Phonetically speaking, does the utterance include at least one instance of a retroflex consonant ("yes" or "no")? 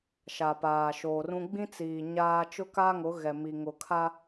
no